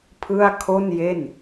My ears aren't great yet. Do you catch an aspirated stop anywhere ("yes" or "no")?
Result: yes